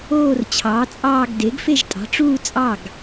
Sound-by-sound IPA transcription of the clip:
oː˥˧ r t͡ɕʰ ɑː˩˥ t͡sʼ ɑː˥˧ ɡ d e˩˥ ɡ f e˥˧ ʒ tʼ ɑ̤˩˥ ʈ͡ʂ uː˥˧ t͡sʼ ɑ˥˩ ɡ

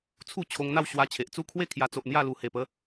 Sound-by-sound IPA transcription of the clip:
t͡sʰ u˥˧ t͡ɕʰ o˧ ŋ n̪ a˥˧ w ɕ w a˧ t͡ɕʰ e˨ ʔ t͡s u˥˧ kʰ w e˥˧ kʰ j a˧ t͡s o˨ ʔ n̪ j a˥˧ l u˨˩ h e˨˩ p ə˨˦

